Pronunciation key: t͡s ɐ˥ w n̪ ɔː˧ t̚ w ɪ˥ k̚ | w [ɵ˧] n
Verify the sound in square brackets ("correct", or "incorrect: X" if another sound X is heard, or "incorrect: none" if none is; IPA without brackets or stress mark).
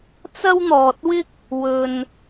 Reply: correct